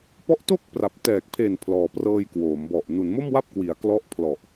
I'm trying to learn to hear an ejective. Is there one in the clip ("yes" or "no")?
no